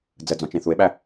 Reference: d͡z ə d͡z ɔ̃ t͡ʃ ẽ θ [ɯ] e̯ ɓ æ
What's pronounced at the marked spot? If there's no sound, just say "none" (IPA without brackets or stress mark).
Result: u